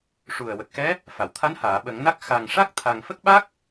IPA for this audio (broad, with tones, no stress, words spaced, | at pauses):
ʂu˨˩ə̯ wə˨˩k̚xɛ˧˥ | fa˨˩˨wt̪ʰa˧˥n haː˨˩˨ɓə˨˩˦ŋna˦˥k̚ xa˨˩ŋʂa˦˥k̚ t̪ʰa˨˩ŋ fə˦˥k̚ɓa˦˥k̚